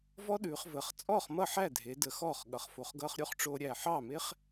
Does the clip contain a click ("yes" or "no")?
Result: no